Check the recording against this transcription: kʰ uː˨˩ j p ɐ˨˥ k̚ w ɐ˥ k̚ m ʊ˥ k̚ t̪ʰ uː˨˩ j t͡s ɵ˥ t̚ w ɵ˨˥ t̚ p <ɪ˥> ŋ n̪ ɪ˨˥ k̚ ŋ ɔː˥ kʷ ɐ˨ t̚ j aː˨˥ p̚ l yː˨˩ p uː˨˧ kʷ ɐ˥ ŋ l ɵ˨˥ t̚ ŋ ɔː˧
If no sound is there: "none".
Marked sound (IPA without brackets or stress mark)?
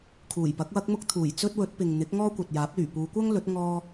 ɪ˨